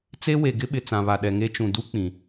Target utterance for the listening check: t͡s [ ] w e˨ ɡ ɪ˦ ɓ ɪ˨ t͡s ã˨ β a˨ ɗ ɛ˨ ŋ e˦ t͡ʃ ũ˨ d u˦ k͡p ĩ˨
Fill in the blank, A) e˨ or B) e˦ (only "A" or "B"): B